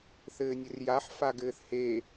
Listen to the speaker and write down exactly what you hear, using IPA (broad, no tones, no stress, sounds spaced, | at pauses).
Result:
θ ɘː nʲ ɘ r j a ħ f a ɡ ɘː θ h e